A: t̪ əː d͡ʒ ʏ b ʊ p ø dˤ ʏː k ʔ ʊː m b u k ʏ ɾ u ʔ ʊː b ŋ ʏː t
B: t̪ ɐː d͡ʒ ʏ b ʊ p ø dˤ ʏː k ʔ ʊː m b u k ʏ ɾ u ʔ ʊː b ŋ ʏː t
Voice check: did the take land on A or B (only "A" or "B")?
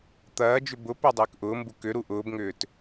B